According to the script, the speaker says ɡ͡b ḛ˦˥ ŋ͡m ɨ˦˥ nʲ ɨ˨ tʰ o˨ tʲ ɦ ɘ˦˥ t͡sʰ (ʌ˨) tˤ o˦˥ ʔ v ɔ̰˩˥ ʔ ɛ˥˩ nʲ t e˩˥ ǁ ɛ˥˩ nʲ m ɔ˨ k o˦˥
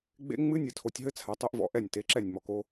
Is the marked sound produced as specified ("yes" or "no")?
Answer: no